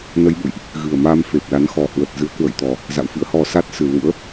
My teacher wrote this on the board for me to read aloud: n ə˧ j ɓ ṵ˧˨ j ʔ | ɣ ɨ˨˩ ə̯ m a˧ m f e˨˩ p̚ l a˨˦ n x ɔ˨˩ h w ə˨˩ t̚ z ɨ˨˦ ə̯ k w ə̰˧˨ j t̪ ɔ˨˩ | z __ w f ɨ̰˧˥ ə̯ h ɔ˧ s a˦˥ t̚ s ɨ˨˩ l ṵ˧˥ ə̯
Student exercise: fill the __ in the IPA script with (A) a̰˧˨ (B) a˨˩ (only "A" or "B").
A